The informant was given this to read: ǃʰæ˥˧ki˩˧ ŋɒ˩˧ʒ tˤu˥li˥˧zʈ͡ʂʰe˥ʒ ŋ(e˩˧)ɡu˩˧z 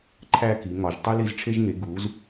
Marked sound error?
no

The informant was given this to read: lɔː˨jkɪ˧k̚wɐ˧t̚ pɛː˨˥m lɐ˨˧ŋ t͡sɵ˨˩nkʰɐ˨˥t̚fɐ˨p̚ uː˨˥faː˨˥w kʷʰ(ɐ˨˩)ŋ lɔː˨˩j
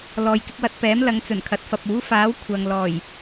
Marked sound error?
yes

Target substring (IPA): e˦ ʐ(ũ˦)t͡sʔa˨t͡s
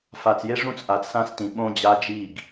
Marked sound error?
no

